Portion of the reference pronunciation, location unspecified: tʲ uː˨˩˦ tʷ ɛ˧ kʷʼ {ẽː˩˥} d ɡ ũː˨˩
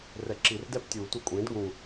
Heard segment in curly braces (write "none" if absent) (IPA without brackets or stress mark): ẽː˩˥